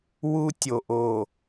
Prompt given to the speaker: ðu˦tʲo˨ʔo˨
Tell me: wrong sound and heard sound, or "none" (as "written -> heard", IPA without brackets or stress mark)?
ð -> w